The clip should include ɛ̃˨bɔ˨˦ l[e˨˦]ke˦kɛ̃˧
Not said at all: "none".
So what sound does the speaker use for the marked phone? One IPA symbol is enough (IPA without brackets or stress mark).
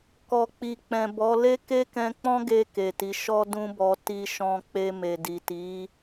e˦